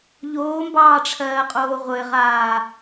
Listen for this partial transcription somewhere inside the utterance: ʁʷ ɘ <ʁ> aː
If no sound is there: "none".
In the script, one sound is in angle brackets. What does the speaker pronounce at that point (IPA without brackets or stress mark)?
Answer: ʁ